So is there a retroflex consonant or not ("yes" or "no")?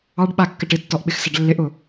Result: yes